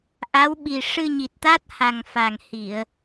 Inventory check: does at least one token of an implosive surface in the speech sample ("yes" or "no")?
yes